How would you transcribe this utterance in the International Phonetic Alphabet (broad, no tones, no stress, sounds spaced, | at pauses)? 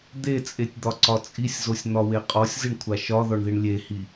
d̪ e t͡sʼ e tʲ d̪ ɒ ǀ ɒ t͡sʼ i sʲ z o sʲ n̪ ɒ w e qʼ ɔ sʲ z i ɳ kʷʰ a ʃ ɒ ð ɔ ɳ ð i ɳ lʲ e h i